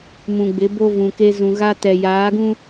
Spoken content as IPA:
m ũ˨ ɡ͡b ɪ˨˦ b o˦ v ũ˨ k e˦ z ũ˨ ɣ a˦ t ɛ˨ j aː˨˦ ɡ ũ˦

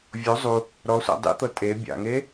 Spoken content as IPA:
vʲ o zˤ u | ɾ ɔ sʷ a̰ dˤ ḭ t̪ ɤ tʼ e bʲ a̰ ŋ e

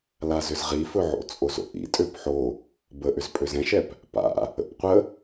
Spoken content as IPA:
l a z ʏ z ʁ i f ɵ ʕ o̰ t͡sʼ o z o̰ ʔ ḭ tʼ ø p ħ o | b ə ʔ ʏ z pʼ ø z ɛ̃ ʃ ɛ p | p a̰ | ə̰ p qʷ ə

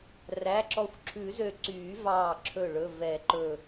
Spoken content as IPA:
r æ˩˧˩ ǁ ɔ˧˩ xʷ ǁʰ ʉ˨˩˦ z ø˧˩ ǀ yː˨˩˦ v ɑː˧˩ ǁʰ ɵ˧˩ ɭ ɵ˩˧˩ v ɛ˨˩˦ ǃ ɵ˧˩

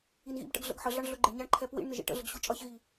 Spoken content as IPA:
i n ɣ ḭ b ʈ ə̰ ɡ ɮ ə̰ ɡ ħ ə ɮ ɑ ɳ ɮ ʊ ɡ͡ǃ ɪ ɳ ɲ ɑ ɳ ǃʰ ɛ p w ḭ ɳ n ɪ ʒ ḭ ʈ ə̰ ɮ ə ɡ ɕ ʊ t͡ʃʼ ʌ ç ɣ i

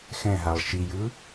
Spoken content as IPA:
x ɛ̃ ɦ a lˠ ʃ i j ɯ

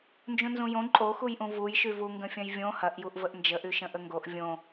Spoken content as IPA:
n d͡ʒ ũ n z ũ j õ ǃʼ o x u j ʔ ũ v u j ʃ y v u ŋ ɡ ə̃ fʲ ɐ̃ j vʲ õ h ɐ ʔ j u ʔ v ə ʔ n d͡ʒ ə ʔ y ʃ ə̃ ʔ ə ŋ ɡ o ʔ vʲ õ

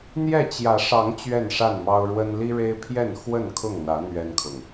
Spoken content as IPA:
n̪ j ɛ˥˨ t͡ɕ j ä˨˦ ʂ ɑ˨˦ ŋ t͡ɕ ɥ ɛ˥˨ n ʂ a˥˨ n m ɑ˦ ʊ̯ ɻ w ə˦ n l i˦ ɻ e˦ ɪ̯ pʰ j ɛ˥˨ n x w ə˥˨ n kʰ ʊ˥˨ ŋ n̪ ä˨˦ n̪ ɥ ɛ˦ n kʰ ʊ˨ ŋ

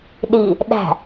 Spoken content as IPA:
ɗ i | ɗ æ̤

